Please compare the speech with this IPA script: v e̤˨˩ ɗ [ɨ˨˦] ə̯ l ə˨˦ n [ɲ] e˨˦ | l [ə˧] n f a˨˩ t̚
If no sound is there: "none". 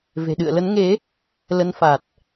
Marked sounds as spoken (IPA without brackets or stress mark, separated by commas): ɨ̰˧˨, ŋ, ə˨˦